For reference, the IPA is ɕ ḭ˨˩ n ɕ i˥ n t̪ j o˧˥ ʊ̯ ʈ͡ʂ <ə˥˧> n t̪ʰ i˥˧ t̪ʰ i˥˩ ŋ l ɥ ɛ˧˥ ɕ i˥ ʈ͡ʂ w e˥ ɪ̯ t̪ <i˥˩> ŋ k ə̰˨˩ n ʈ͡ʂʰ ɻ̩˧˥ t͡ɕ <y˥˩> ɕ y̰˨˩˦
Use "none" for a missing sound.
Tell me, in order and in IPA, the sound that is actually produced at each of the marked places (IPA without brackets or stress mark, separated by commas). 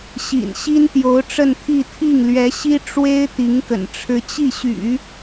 ə˥˧, i˧˥, i˥˩